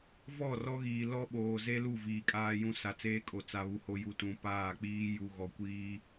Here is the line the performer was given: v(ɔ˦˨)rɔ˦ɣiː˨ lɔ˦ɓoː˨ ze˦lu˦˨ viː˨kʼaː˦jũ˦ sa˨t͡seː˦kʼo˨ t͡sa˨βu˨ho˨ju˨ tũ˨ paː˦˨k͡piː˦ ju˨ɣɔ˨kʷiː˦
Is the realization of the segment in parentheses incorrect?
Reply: no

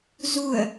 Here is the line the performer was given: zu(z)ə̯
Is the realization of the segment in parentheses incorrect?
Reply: yes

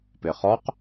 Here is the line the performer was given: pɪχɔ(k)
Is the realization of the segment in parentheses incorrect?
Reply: yes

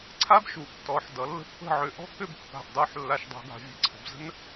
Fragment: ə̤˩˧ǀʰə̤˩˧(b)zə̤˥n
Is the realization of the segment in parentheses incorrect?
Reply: no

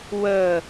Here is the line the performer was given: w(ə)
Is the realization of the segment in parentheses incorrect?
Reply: no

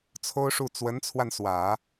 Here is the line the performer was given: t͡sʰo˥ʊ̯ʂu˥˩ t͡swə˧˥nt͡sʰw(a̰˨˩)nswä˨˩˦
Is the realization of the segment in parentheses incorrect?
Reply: yes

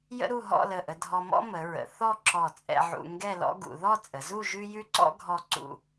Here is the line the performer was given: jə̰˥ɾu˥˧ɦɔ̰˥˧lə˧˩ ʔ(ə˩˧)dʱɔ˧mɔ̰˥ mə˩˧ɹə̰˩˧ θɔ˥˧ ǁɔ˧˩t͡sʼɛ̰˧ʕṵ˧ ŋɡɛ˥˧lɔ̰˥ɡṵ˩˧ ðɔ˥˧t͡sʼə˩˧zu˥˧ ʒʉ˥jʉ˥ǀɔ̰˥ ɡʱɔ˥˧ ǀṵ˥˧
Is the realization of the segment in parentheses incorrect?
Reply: yes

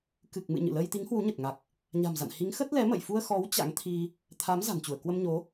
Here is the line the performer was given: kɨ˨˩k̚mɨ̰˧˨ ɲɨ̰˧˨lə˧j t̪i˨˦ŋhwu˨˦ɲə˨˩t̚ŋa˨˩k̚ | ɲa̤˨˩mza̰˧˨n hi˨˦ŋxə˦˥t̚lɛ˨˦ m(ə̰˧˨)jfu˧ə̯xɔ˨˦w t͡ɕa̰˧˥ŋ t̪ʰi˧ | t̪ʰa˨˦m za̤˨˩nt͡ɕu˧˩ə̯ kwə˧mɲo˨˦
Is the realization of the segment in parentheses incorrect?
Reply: no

